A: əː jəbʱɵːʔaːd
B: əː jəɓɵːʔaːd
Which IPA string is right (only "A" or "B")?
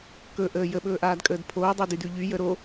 B